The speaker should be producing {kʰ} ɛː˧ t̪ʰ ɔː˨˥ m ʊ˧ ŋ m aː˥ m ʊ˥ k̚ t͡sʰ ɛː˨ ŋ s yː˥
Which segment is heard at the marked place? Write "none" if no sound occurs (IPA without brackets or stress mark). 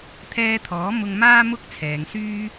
t̪ʰ